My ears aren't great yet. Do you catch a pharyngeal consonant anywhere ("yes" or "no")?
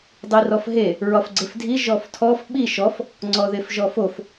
no